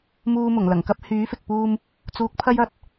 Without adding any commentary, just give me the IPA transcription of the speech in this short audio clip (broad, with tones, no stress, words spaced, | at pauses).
muː˧mʊ˨˩ŋ lɐ˨˩ŋkɐ˥p̚ hyː˨˥fɪ˨k̚puː˧m | t͡suː˧k̚ pʰɐ˥jɐ˥t̚